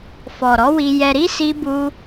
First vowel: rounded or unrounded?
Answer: rounded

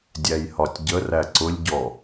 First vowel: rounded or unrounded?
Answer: unrounded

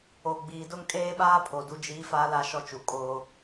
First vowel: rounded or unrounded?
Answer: rounded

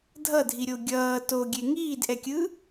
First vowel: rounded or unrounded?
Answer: unrounded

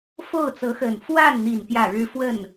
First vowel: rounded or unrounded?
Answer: rounded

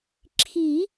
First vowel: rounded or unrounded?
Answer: unrounded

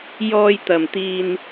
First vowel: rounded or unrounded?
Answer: rounded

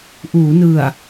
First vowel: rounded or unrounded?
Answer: rounded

